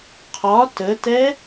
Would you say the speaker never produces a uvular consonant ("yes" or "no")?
no